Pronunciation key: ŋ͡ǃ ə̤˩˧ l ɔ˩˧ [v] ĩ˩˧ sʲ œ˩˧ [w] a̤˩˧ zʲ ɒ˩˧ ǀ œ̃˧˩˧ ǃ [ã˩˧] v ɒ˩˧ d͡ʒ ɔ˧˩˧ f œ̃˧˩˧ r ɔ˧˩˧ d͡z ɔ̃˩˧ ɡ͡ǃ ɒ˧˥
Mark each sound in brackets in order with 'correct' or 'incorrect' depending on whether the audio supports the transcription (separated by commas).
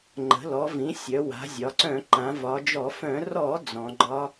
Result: correct, correct, correct